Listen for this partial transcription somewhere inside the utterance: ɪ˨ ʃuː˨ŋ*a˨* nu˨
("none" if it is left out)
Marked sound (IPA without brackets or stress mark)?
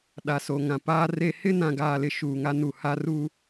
a˦